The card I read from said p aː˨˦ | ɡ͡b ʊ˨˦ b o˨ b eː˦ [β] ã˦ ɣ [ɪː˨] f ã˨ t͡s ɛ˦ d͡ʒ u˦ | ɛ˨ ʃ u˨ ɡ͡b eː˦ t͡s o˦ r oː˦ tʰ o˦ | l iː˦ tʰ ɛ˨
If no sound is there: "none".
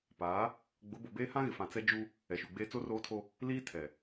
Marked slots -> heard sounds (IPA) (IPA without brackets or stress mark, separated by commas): h, ɪ˨